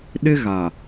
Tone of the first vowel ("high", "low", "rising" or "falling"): high